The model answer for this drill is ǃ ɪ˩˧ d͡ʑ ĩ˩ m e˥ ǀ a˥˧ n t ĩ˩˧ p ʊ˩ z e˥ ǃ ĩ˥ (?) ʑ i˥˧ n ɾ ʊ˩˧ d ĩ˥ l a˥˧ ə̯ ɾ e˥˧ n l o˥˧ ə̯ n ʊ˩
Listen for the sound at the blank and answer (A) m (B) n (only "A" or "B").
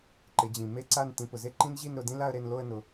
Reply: B